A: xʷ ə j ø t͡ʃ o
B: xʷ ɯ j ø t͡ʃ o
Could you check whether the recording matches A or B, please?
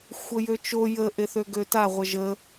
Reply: A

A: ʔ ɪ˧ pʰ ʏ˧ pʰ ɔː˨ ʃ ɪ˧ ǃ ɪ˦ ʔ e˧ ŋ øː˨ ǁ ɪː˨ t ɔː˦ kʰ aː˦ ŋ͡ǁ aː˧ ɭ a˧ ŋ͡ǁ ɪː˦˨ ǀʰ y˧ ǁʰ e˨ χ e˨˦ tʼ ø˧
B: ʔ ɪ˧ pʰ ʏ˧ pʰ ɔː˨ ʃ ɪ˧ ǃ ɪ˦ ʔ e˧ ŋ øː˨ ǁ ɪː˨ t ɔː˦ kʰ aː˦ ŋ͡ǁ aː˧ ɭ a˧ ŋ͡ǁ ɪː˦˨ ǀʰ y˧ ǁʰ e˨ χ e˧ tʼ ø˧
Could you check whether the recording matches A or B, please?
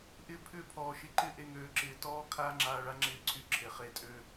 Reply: B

